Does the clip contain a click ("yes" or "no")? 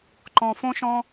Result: yes